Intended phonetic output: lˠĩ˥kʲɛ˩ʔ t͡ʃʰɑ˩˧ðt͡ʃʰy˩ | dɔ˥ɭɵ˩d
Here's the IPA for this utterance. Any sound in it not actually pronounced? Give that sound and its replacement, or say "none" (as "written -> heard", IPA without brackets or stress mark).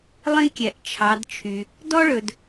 ð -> d